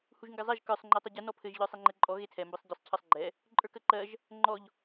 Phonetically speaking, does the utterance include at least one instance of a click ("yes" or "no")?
yes